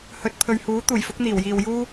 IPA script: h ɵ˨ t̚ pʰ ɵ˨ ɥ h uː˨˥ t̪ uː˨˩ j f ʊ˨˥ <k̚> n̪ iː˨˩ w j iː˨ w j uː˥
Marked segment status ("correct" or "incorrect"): correct